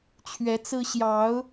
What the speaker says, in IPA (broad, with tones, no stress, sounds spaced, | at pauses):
t͡ɕʰ ɥ ɛ˨˦ t͡s ɹ̩˦ ɕ j ɑ˨˦ ʊ̯